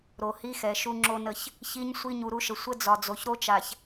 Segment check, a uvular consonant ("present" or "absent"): absent